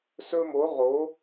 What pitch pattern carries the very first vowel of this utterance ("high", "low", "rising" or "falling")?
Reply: high